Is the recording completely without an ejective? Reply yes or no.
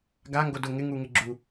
yes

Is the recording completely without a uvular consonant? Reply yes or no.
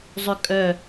yes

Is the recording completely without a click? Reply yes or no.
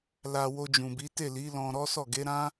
yes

